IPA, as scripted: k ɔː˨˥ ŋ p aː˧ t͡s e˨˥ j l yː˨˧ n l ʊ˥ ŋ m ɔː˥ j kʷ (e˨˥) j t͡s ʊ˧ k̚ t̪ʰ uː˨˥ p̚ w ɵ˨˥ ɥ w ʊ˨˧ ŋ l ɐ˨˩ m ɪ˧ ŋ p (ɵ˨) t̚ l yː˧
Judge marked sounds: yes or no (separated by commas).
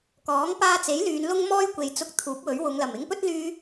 no, no